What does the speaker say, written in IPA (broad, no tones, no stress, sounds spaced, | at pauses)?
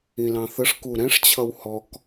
ĩ l ɑ̃ θ ə ʂ k u ɾ ɛ̃ ʂ t͡ɕʰ ʌ w h ɔ k